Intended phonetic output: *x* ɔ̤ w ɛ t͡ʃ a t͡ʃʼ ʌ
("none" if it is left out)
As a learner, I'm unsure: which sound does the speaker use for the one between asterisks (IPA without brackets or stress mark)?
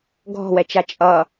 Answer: ɡʱ